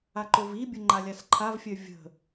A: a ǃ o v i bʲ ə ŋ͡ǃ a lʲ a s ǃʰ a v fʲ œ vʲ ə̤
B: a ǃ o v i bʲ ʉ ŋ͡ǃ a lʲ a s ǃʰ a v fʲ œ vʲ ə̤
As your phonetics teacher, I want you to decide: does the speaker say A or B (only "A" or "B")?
A